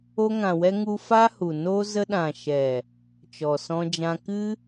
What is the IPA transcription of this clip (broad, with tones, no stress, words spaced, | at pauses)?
o˧ŋã˨wɛ˧ ŋu˧fa˦hu˨ no˧ zə˧ɗã˨ʃɛ˨ | t͡ʃɔ˨sɔ̃˧d͡ʒã˧ kɨ˦